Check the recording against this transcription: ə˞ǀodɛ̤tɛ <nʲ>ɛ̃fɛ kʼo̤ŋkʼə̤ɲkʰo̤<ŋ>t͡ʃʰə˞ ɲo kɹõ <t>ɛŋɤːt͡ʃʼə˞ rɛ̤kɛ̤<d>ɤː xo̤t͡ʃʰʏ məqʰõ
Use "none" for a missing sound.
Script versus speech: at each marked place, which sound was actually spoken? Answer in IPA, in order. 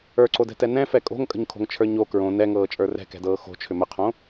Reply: n, ŋ, n, d

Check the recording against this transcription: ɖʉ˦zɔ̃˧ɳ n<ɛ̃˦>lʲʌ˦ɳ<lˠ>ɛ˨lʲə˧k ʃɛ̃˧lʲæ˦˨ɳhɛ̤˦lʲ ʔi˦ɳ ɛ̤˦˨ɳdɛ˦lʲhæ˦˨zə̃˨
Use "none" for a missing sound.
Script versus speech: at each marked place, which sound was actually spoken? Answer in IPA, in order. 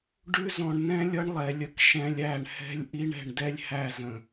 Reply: ɛ̃˦, lˠ

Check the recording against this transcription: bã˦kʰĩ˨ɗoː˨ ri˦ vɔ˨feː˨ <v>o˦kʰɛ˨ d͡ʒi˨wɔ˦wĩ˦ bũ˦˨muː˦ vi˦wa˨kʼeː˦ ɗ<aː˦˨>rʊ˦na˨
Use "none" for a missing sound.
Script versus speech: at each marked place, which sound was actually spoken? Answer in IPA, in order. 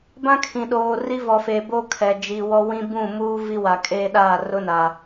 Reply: b, aː˦˨

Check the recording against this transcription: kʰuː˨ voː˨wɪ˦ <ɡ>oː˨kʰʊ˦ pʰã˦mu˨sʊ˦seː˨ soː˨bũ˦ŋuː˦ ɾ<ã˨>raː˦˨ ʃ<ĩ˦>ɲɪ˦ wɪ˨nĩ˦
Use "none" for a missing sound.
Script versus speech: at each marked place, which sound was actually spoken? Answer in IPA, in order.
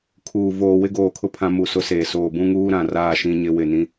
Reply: ɡ, ã˨, ĩ˦

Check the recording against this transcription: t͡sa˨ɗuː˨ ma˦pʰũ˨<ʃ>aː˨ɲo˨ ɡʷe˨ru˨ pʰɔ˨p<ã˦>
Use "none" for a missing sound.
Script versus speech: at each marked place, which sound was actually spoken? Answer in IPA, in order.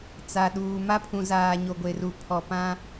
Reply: z, ã˦

